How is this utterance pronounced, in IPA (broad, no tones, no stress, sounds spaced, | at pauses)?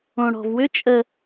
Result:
õ ɽ ɔ̤ v w ʏ t͡ʃʼ ə